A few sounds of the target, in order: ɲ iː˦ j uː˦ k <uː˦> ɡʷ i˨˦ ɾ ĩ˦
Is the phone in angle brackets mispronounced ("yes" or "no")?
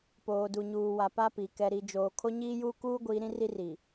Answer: no